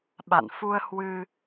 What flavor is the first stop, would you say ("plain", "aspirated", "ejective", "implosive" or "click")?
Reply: implosive